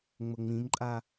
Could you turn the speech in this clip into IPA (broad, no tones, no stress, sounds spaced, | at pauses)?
ŋ͡m ʊ ŋ͡m ĩ m ǃʼ a